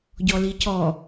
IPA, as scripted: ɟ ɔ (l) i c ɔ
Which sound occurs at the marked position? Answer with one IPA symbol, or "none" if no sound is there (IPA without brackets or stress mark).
l